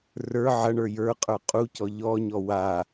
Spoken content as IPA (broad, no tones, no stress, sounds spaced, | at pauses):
r ə˞ ʕ ɐ ɳ ə˞ j ə˞ qʼ ə˞ qʼ u c ɔ ʎ ɔ ɲ ɔ w a